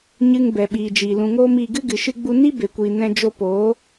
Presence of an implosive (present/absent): present